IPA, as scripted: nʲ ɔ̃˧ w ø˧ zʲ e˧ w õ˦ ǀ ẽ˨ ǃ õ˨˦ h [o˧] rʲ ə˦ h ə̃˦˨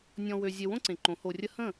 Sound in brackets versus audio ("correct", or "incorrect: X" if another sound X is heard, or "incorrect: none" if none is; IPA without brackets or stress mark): correct